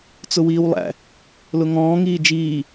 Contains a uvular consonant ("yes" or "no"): no